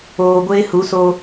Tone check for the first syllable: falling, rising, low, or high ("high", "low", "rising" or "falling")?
low